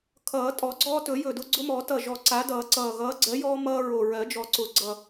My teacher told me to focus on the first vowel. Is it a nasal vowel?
no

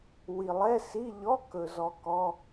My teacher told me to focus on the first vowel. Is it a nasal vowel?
no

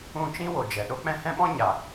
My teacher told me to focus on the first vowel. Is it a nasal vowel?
yes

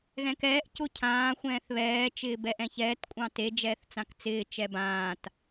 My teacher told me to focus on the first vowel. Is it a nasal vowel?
yes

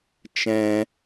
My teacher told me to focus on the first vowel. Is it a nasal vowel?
yes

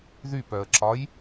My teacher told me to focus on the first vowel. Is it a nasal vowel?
no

